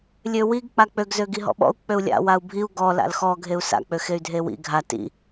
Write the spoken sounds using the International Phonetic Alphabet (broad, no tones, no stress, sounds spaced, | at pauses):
lʲ ø w i ɡ k͡p a k͡p ø ɡ z ø ɡ i ɦ ɔ̰ ɓ ɔ̰ u̯ k͡p ø u̯ lʲ a̰ w a u̯ bʱ i u̯ ɡ ɔ l a̰ l x ɔ ɡʱ e u̯ s a̰ k͡p ø x e y̯ dʱ e w ḭ ɡʱ a t ḭ